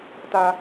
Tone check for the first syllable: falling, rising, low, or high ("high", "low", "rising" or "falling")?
high